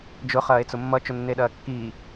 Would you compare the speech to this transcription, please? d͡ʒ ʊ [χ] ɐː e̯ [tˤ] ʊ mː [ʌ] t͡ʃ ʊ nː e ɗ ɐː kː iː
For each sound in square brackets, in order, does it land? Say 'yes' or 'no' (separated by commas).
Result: yes, no, yes